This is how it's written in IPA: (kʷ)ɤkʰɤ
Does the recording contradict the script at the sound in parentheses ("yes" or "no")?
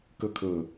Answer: yes